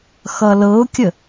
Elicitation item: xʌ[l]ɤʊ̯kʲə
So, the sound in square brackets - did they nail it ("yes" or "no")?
yes